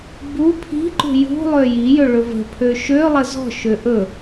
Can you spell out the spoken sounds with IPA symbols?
b u pʰ i̤ ǃ ṳ j ṳ lˠ ø j i j ɵ ɭ ɵ v ə̤ pʰ ø ʃ ø lˠ ə z ɔ̤ ʃ ø ʔ ɵ

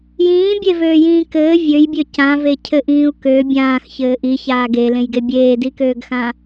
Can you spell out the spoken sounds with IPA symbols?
j ĩː bʲ e v øː j ĩː k ɘː vʲ ø j bʲ ø c ã v e cʰ ɘ ʔ ĩː u̯ k ø bʲ ãː x ç ɘː ʔ i ç aː ɡ e l ẽ j ɡ e bʲ eː d i k øː ɡ x ã

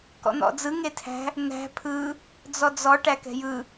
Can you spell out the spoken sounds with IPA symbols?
k ɔ̰ n̪ ɔ̰ d͡z ɯ ŋ e tʰ æ̤ | n̪ æ̤ pʰ ɯ | d͡z ɔ d͡z ɔ ʈ æ k ɛ̤ j ɯ

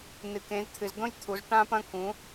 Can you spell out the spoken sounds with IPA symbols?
n ɨ˨˩˦ k ẽ˨˦ z t̪ʰ ɨ˨˦ z d̪ õ˥ j t̪ʰ u˨˦ z ʈ ã˥ p ɐ̃˥ k ũ˨˦

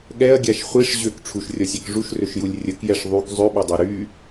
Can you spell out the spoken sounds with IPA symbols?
ɠ ɛ ɐ̯ ɡʲ a ʃ χʷ i ʂ ʑ ø k ʈ͡ʂʰ u ʃ rʲ ɔ sʲ ɛ k ʐ u ʃ r ø ʃ j u lʲ rʲ ə k j ɛ ʂ ðˤ y k zˤ ø ɓ ɛ dˤ ɛ ɾ y

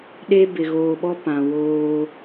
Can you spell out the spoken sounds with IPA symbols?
ɗ e˦ b ɪ˨ ɣ oː˨ ɓ ɔ˦ p ã˨ w oː˦

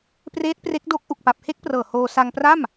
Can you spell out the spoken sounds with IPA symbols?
p r eː˦˥ t̚ p r e˦˥ k̚ d o˦˥ k̚ ʔ u˨˩ k̚ p a˨˩ p̚ h e˦˥ k̚ p r ɤː˨˩ h oː˧ s a˧ ŋ p r a˥˩ m

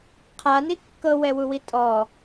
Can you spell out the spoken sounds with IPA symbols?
qʰ a n i kː ɤ w ɛ w u w i tʼ ɔ

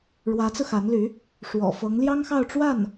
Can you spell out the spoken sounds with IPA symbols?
ɻ w ä˧˥ t͡s ɹ̩˧ x a˧˥ n l y˧˥ | ʂ w ɔ̰˨˩ f ɤ˧˥ ŋ l j ɑ˥ ŋ x ɑ˥˧ ʊ̯ ʈ͡ʂ w a˥˩ n

